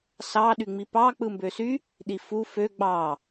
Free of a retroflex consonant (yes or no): yes